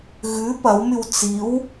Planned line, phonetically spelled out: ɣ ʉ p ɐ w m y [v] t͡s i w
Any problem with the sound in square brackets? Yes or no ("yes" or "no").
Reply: yes